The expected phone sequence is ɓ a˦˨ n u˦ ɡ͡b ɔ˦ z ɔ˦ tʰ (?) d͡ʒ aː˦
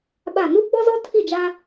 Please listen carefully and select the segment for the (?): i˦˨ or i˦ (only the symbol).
i˦˨